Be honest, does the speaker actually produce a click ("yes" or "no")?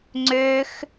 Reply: yes